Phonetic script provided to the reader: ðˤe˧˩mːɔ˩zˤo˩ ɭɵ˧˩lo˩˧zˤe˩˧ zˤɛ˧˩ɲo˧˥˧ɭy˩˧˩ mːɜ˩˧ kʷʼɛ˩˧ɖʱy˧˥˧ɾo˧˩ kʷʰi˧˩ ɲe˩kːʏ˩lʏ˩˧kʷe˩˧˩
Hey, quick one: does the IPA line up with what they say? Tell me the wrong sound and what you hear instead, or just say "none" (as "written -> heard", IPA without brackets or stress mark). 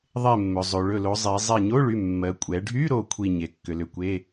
ɔ˩ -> ɵ˩